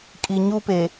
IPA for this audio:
kʼ i˨ ɲ uː˦ p e˨

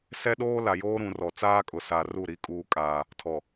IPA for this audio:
s ɛ˦ ɗ oː˦ l a˨ j oː˦ ɾ ũ˨ r ɔ˨ t͡s aː˦ kʼ ʊ˨ s a˦ r u˦˨ ɾ i˦ kʼ uː˦ kʼ aː˦ | tʰ ɔ˨

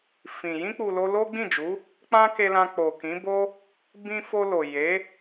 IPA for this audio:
f ĩ˨ j ĩ˧ k͡p u˨ l o˧ l o˦ ɡ͡b ĩ˦˨ d͡ʒ u˨˦ | k͡p ã˦ k e˧ l ã˧ k͡p o˨ k ĩ˨˦ b o˦ | b ĩ˧ f o˧ l o˨ j e˨˦

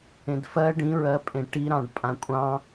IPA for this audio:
ẽ d f ɜ ɖ ĩ ɹ ɜ pʼ ẽ ʈ i ɾ ɑ̃ ɖ pʼ ã kʷʼ ɑ̃

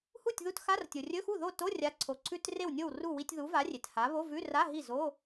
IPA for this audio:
h u˥˩ tʲ ð u˧˥˧ t x a˧˥˧ r tʲ o˩ rʲ ɵ˧˥˧ x u˥˩ ð o˥˩ t o˧˥˧ rʲ a˨˥ ǀʰ o˩ ǀʰ ʉ˧˥˧ t r e˥˩ w nʲ o˥˩ w r u˥˩ w i˧˥˧ tʲ ð u˨˥ v a˨˥ rʲ e˩ t h a˨˥ β o˧˥˧ v ʉ˧˥˧ r a˧˥˧ ɦ i˥˩ z o˧˥˧

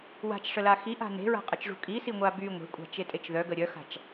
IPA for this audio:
w a̤ t͡ʃ ʂ ə l a x i ʔ a̤ n e̤ ɹ a̤ qʼ ə t͡ʃ ʐ ṳ kʼ i s i ŋʷ a b y ŋʷ e̤ kʷʼ a̤ t͡ʃ e tʼ e t͡ʃ ð œ ɡ ə ɾʲ œ x a̤ t͡ʃ

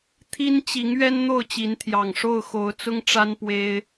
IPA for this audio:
t̪ʰ i˦ n t͡ɕ i˨˦ ŋ ɥ ɛ˦ n n̪ o˥˨ ʊ̯ t͡ɕ i˨˦ n t̪ʰ j ɑ˨˩ ŋ ʂ o˥˨ ʊ̯ x o˨˦ ʊ̯ t͡s ʊ˦ ŋ ʈ͡ʂ a˦ n p w e˦ ɪ̯

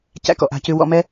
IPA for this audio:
c æ̰˦ k ɔ̰˨ ʔ a̤˦˨ c ʉ˧ w ɔ̰˧ m ɛ˦

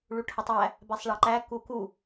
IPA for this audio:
ɭ u ʈʰ ə tˤ æ | b æ sˤ ɭ ɑ ǃ æ k u k u

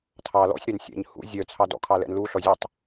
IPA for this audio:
tʰ ɑ l ɔ̰ sʲ ɾ ɛ n sʲ ɛ̰ ɲ h ṵ zʲ œ t͡sʰ ɑ d ɔ̰ kʰ ɑ l ɛ̰ n l u ɬ ɔ zʲ u tˤ

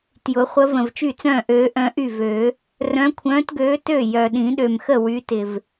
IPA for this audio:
t j ʊ˨˩˦ χʷ ə˨˦ v ə̃˨˩ v t͡ʃ y˥˩ t͡s œ̃ː˥˩ ʔ øː˨˦ ʔ œ̃˨˦ ʔ y˥˩ v øː˨˩˦ | r œ̃˨˦ kʷʰ œ̃ː˨˦ t ɡ øː˨˦ t ø˥˩ j œ˨˩ ɗ ĩ˨˩˦ ɗ ø˨˩ m x ə˥˩ w y˨˦ t ɪ˨˩ v

